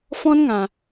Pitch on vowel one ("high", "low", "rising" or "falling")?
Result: high